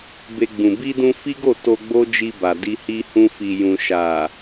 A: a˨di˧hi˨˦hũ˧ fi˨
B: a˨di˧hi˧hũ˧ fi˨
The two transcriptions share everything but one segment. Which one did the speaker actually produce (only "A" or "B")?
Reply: B